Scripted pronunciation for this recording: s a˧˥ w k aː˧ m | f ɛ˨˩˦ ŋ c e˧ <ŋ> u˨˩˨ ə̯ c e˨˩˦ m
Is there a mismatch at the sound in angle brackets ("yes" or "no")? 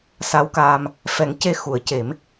yes